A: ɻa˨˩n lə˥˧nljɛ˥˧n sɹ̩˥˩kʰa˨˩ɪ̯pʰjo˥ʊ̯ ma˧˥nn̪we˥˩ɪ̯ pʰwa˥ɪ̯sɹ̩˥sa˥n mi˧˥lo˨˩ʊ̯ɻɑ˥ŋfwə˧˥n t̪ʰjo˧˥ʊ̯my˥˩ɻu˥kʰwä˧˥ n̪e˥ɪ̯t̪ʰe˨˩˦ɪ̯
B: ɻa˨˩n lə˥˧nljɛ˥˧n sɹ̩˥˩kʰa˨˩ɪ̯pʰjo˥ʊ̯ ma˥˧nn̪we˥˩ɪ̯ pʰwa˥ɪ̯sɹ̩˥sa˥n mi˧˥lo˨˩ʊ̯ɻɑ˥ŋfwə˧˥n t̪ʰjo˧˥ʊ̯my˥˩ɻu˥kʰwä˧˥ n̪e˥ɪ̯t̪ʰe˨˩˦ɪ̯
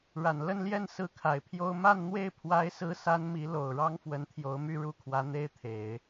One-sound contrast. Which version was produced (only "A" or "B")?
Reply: B